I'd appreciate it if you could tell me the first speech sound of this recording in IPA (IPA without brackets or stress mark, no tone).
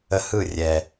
ə